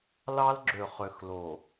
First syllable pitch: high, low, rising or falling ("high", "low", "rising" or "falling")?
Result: high